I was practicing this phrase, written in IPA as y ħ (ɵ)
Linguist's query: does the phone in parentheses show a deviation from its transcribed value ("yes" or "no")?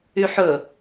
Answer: no